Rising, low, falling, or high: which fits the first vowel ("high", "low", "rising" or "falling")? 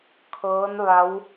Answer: rising